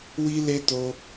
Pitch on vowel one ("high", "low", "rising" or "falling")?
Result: high